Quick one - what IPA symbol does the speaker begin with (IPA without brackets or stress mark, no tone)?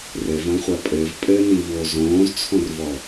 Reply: r